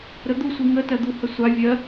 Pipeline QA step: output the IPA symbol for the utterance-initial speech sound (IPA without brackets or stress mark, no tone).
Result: ɾ